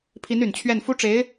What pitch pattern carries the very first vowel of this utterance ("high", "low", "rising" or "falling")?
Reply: rising